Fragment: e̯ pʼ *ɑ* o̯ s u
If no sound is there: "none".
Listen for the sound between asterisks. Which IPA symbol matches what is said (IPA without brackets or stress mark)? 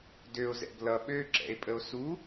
ə